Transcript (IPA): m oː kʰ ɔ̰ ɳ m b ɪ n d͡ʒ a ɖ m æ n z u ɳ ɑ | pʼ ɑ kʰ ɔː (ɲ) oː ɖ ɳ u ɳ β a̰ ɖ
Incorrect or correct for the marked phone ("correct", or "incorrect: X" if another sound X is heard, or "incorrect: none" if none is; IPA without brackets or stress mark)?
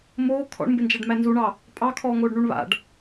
incorrect: ŋ